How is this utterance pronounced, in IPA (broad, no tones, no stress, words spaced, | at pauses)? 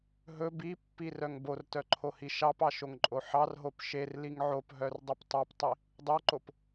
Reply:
ɦɵ bipːirœŋ bortœǃʰohi ʃɑpɑʃoŋǃʼo ħɑrɦop ʃerliŋ ʕopɦœrdˤip tˤɑptˤi | dˤoǃop